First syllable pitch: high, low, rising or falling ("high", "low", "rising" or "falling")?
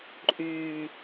low